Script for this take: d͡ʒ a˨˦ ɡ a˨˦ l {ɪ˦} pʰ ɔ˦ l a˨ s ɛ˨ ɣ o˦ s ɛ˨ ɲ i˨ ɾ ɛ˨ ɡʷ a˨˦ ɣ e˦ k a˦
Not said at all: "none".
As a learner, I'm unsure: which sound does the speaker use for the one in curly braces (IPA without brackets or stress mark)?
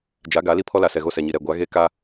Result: i˦